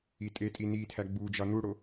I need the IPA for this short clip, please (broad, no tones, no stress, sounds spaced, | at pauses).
i tʼ e tʼ i n i tʰ æ ɡ͡b u d͡ʒ ɒ n u ɽ o